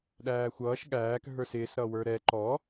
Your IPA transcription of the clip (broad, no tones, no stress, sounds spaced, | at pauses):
ɗ æː xʷ ʌː ʃ ɠ æː k ɦ ə˞ s ɪː s ɾ ʌ w ə˞ ɾ ɛ ǃ ɔ